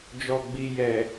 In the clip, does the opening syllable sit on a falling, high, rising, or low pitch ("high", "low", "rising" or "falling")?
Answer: low